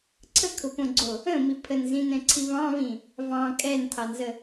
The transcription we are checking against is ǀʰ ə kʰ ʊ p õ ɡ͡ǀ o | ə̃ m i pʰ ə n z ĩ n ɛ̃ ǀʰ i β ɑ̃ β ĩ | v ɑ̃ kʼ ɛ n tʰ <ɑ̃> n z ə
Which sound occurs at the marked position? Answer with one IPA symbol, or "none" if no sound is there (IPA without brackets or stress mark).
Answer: ɑ